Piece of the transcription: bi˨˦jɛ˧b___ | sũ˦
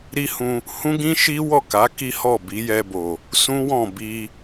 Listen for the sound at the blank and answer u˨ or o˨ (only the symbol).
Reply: o˨